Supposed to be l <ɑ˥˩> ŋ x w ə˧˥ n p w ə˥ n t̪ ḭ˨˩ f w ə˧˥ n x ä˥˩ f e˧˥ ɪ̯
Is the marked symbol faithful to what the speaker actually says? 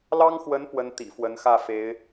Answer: no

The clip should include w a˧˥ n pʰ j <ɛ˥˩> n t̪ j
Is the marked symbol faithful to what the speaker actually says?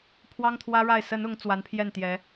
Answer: yes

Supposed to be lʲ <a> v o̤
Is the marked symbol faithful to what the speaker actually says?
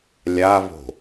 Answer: yes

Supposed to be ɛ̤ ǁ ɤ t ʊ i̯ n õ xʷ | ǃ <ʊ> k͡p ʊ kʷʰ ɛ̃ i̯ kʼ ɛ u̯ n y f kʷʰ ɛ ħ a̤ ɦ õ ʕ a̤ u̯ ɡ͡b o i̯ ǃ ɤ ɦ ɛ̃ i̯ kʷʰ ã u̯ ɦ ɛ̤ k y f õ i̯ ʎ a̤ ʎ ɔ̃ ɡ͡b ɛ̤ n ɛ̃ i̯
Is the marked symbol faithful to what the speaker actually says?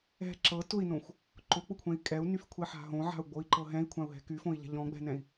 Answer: yes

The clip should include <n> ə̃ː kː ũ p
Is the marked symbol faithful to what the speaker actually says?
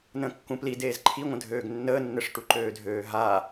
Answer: yes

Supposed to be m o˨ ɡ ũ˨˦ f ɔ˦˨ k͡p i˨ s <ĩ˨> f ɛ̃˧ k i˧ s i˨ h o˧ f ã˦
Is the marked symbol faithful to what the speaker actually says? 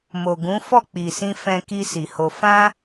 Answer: no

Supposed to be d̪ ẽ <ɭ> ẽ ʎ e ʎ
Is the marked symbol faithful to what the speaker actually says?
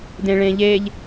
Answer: yes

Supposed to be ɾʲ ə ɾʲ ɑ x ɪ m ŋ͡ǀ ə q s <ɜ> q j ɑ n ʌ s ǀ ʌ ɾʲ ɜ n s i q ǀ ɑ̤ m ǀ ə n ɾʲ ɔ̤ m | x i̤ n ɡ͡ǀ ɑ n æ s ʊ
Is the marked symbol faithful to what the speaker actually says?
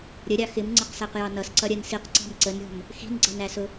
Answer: no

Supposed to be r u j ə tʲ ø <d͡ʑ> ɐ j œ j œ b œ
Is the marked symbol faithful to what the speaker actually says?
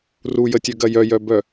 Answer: no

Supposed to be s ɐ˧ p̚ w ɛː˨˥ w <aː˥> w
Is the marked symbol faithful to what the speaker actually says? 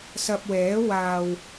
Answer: no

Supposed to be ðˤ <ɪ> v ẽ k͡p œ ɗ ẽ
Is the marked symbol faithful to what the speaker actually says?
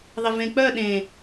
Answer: yes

